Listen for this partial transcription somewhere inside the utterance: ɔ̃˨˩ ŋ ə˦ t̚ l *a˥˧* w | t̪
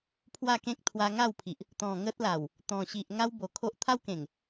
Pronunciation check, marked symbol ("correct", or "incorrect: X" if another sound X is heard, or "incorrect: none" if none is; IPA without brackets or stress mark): incorrect: a˨˩